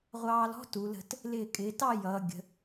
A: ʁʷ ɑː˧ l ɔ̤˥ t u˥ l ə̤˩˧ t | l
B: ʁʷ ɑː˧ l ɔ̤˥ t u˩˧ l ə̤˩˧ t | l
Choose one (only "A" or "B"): B